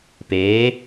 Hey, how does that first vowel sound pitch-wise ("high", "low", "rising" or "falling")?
rising